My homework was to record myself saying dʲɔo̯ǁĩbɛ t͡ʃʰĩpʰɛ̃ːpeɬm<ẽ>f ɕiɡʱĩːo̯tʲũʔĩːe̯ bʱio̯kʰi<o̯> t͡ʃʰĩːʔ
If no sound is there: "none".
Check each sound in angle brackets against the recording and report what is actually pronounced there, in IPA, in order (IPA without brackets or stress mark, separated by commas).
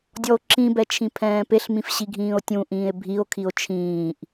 ĩ, o̯